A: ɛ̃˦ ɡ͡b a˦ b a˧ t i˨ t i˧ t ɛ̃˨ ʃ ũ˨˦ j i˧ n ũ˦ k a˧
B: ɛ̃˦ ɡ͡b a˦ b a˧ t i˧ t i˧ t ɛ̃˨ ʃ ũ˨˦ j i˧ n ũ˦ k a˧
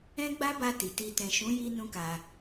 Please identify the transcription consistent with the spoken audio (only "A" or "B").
A